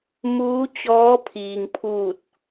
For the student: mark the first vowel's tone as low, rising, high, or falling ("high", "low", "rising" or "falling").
rising